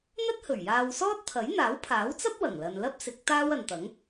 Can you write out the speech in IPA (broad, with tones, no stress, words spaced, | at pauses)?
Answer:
n̪ɐ˥t̚hɵ˨˩ɥjaː˧wsɔː˥t̚ t̪ʰɐ˨˥jn̪aː˨˥wpʰaː˨˥wt͡sɐ˥p̚ wɐ˨˩ŋlɐ˨nlɐ˥p̚ sɪ˨˥k̚ t̪aː˥wɐ˨nt̪ɐ˨˥ŋ